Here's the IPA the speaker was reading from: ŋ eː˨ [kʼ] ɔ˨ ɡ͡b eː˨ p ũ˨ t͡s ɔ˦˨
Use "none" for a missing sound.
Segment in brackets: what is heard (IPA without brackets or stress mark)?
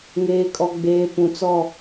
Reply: kʼ